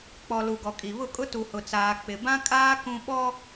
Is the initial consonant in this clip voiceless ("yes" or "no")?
yes